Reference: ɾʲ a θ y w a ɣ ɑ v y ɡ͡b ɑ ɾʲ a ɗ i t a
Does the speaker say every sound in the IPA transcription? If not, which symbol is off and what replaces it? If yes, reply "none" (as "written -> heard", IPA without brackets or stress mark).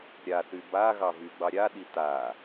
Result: w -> b